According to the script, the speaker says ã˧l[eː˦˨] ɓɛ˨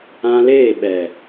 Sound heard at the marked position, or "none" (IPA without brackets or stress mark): eː˦˨